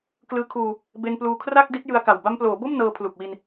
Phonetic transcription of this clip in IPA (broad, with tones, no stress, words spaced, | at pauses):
klɯː˧kʰuː˧ | be˧npluː˧kʰra˥˩k̚ di˦˥t̚jɯ˧a̯ka˨˩w ba˧mploː˩˦bo˥˩m nɤː˧pʰlu˨˩k̚wi˧n